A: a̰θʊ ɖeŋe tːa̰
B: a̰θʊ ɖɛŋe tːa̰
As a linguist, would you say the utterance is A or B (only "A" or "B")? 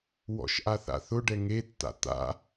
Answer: B